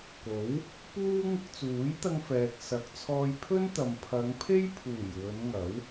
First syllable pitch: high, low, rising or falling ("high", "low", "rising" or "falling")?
rising